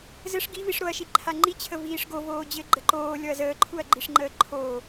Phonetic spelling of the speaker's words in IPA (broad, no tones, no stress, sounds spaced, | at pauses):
z ɘ ʂ ɡ i v i ʂ ɾ o ɐ̯ ʃ i ǃʰ a ŋ͡ǃ i t͡ɕʰ ə v iː ʂ ɡ o v oː d͡ʑ ɘ ɡ͡ǃ ə ǃ oː lʲ ɔ ɐ̯ z əː ǃʰ u ɐ̯ ɡ͡ǃ i ʂ ŋ͡ǃ əː ǃʰ oː